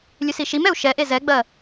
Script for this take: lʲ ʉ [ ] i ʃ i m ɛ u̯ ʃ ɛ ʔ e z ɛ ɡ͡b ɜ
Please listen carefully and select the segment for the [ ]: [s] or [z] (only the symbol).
s